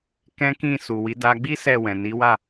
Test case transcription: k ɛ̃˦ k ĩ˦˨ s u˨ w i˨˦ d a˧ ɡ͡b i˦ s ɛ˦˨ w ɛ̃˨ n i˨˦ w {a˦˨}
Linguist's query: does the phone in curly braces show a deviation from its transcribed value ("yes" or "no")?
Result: no